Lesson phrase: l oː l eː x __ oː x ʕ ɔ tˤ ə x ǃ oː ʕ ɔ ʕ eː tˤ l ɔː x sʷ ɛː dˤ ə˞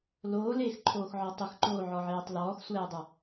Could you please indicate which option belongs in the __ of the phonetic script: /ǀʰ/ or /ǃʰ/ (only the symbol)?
ǃʰ